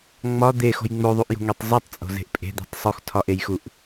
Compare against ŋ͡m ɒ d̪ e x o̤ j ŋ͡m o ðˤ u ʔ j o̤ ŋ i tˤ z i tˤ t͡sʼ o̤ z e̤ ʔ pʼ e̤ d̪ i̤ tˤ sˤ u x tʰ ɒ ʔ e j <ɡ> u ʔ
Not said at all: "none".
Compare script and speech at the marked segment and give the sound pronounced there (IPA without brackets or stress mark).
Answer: x